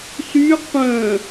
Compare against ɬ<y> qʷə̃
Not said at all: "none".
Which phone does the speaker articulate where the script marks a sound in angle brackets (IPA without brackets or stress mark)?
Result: y